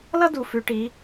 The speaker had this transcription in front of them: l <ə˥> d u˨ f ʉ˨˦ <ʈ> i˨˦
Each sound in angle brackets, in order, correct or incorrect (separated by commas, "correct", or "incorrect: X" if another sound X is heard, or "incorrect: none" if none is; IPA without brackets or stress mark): incorrect: ʌ˥, correct